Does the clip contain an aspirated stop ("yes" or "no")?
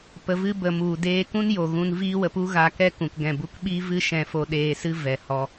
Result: no